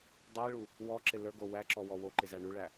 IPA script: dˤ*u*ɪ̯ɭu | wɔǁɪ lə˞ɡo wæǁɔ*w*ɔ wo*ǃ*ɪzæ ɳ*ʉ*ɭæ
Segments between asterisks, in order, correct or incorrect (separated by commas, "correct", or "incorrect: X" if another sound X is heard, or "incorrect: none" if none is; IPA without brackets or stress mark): correct, correct, correct, correct